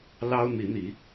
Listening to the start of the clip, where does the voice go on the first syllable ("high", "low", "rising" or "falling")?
high